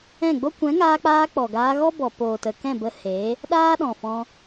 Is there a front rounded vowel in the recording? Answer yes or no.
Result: no